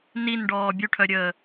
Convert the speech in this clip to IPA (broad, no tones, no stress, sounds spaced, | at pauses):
n i n ɖ ɔː bʲ u ʈʰ œ ɾʲ əː